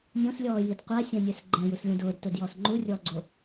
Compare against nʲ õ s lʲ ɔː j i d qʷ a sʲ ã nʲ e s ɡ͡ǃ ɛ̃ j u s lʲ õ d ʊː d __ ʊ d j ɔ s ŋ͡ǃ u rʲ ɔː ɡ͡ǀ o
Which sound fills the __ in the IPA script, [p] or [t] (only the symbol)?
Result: t